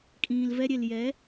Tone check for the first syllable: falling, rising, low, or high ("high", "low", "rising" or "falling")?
low